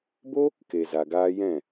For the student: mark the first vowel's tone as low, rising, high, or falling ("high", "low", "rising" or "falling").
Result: high